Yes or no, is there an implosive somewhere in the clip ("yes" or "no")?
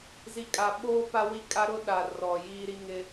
yes